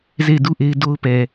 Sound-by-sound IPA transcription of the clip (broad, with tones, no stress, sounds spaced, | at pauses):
z e˦˨ ɪ̯ d u˦ ʔ e˦ ɪ̯ d o˦ ʊ̯ p ɛ˨